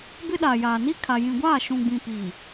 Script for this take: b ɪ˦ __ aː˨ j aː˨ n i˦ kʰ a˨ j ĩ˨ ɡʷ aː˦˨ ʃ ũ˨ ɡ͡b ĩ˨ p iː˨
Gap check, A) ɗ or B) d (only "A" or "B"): A